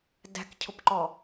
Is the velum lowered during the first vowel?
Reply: no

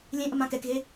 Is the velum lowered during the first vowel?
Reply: yes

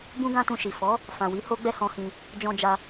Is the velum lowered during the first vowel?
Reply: yes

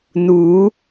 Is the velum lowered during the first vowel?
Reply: no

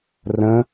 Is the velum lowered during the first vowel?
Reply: yes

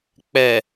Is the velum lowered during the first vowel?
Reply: no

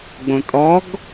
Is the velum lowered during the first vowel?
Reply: yes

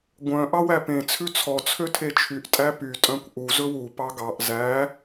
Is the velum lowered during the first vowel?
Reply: yes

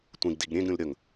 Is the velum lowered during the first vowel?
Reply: yes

